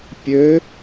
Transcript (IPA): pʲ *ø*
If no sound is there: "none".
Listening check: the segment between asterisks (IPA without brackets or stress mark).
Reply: ø